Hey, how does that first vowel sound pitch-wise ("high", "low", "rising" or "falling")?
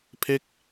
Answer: falling